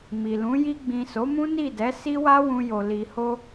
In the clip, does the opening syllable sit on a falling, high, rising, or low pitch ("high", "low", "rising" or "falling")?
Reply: low